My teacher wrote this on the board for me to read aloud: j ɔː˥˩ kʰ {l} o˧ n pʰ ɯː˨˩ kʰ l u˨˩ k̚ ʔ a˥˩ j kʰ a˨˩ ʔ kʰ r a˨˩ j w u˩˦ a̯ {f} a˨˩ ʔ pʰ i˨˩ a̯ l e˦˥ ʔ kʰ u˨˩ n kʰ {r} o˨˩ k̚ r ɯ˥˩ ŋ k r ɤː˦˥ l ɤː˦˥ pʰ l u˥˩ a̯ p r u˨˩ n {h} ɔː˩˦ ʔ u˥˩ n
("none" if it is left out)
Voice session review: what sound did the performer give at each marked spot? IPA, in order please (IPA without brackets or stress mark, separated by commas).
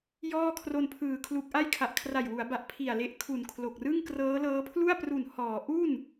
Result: r, b, l, h